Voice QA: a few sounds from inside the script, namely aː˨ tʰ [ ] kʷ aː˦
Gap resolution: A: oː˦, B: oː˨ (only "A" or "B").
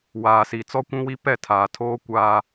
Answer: A